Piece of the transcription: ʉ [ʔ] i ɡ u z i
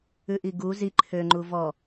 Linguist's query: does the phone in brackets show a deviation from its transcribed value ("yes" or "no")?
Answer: no